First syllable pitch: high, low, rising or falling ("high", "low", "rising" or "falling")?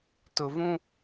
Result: low